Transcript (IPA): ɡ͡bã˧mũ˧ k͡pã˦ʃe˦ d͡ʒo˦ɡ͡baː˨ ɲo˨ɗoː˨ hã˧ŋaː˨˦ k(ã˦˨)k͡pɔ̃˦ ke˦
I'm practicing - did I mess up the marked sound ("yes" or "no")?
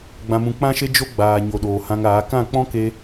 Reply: no